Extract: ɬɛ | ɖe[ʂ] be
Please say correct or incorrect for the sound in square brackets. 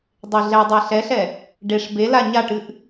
correct